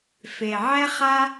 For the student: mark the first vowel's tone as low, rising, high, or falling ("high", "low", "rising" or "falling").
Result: low